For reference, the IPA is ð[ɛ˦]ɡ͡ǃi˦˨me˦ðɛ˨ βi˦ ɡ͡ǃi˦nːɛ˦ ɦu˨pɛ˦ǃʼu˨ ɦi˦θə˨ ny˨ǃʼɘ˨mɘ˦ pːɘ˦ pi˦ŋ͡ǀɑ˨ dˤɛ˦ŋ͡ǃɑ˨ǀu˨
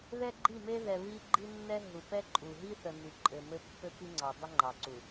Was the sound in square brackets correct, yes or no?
yes